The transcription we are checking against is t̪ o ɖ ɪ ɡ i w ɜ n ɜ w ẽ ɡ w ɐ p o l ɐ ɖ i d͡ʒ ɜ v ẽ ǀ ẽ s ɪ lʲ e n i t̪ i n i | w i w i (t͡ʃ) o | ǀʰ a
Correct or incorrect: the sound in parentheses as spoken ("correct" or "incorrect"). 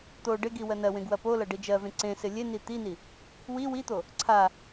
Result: incorrect